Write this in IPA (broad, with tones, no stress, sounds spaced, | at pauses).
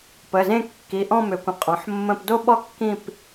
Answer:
p ə˩˧˩ z ẽ˥˧ kː i˩˧˩ ʔ ɔ̃˥˧ m ʏ˩˧ kʷ ə̃˩˧ qʼ ɔ̃˩˧ ħ mː ə̃˥˧ p d o˥˧ ɓ ɔ˥˧ kː ĩ˥˧ p